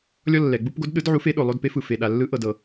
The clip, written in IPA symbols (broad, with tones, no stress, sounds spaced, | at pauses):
lʲ ɔ˧ lː ɛ˩ ɡ͡b u˧ p ɡ o˨˥ d ɗ ɯ˨˥ d ʕ u˨˥ f e˨˥ ɗ o˩ lˠ o˧ d p e˨˥ f ɯ˩ f e˩ ɗ a˩ lː ɯ˨˥ ʔ ɤ˩ d ɤ˩